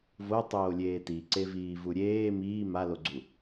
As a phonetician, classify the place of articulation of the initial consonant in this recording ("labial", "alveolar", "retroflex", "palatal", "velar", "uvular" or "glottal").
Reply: labial